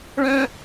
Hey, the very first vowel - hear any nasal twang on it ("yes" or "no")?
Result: yes